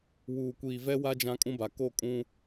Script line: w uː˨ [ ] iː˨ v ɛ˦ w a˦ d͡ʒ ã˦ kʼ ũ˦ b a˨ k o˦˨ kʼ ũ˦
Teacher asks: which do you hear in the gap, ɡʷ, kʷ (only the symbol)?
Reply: kʷ